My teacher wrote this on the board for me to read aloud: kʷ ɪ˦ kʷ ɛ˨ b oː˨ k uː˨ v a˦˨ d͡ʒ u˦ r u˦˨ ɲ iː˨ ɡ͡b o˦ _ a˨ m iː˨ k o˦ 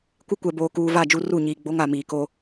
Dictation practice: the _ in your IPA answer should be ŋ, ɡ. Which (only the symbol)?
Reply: ŋ